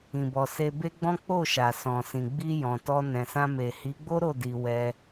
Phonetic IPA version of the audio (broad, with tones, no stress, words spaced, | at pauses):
ĩ˨bɔ˨ se˧be˦ɡ͡bɔ̃˦ k͡po˦˨ʃa˨ sɔ̃˨sĩ˨ ɡ͡bi˧jɔ̃˨tɔ˧ nɛ̃˨sã˧me˨ hi˨˦ɡ͡bo˦ɾo˦˨ di˧wɛ˧